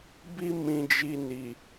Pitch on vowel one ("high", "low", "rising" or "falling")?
high